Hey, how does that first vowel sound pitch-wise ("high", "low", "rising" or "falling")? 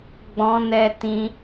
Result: high